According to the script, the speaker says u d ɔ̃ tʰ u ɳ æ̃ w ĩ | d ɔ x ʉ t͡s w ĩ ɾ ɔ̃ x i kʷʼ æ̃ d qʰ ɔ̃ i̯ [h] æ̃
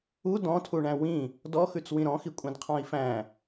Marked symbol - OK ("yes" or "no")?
no